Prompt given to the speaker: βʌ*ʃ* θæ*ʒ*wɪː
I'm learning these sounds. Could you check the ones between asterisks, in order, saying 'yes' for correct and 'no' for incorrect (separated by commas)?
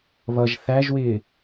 no, yes